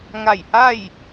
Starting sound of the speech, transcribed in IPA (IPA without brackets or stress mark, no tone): ŋ